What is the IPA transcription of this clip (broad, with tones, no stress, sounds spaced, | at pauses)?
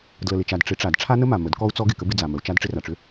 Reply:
d l ə˨ l ɪ˨ t͡ʃ a˨ d ʈ͡ʂ ɪ˨˦ ʈ͡ʂ a˨ d ʈ͡ʂʰ a˦ n ə˦ m a˨ m ə˨˦ d k ɔ˦ u̯ t͡s ɔ˦ ɡ ɪ˨ k ə˦ b ɪ˦ d͡z a˨ m ə˨ u̯ t͡ʃ a˦ d ʈ͡ʂ ɪ˦ r a˨ ʈ͡ʂ ʏ˦